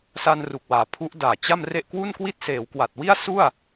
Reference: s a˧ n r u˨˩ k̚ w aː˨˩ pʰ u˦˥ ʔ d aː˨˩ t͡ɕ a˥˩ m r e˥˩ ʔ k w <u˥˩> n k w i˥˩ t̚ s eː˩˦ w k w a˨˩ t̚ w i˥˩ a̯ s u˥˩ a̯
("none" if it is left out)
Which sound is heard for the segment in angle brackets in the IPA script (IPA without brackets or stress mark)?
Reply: u˥˩